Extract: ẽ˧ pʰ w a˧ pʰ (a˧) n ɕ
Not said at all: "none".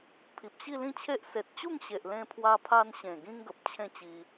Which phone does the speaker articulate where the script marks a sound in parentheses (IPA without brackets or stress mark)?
a˧